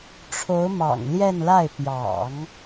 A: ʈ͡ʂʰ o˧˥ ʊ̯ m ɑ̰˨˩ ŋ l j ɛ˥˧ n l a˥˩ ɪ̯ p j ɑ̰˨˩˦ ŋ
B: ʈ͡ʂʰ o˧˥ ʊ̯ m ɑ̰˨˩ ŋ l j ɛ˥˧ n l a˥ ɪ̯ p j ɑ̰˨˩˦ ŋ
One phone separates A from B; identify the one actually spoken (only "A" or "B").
A